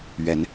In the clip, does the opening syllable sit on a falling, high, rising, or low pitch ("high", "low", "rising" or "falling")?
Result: rising